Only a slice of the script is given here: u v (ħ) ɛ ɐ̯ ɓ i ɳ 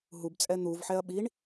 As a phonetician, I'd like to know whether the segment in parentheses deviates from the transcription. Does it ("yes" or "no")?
no